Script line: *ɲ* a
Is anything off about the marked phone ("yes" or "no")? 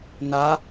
yes